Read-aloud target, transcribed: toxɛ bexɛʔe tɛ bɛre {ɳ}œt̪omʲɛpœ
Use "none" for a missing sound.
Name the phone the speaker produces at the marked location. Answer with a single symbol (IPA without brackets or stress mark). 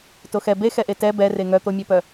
ŋ